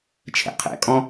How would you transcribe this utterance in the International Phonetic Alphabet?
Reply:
t͡ʃʰ ɛ̰ qʰ ɛ̰ kʼ ɔ̃

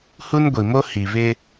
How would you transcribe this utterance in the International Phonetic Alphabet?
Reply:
h u˦ n ɡʷ i˨ m o˦ h i˨ β ɪ˦

